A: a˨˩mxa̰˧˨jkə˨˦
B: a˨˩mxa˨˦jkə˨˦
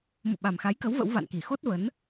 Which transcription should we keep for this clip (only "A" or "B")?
B